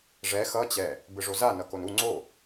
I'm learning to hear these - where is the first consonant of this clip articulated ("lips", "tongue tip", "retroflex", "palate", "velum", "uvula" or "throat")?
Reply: retroflex